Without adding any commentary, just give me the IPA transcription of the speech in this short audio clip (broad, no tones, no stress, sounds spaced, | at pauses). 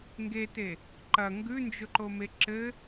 ŋ ɡ e t e | ǃ ɐ ŋ ɡ ʉ n d͡ʒ ʊ ǃ o m e ǁ ɘ